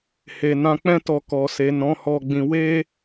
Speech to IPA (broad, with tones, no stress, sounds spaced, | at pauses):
h e˧ n ã˧ k͡p ɛ̃˦ t ɔ˧ k ɔ˨ s e˨ n ɔ̃˨˦ h ɔ˧ ɡ͡b ĩ˧ w e˦